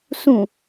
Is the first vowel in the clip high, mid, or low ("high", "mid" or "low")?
high